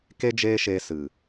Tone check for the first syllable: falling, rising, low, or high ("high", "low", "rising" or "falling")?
high